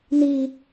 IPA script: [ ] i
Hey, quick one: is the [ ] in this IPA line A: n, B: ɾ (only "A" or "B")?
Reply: A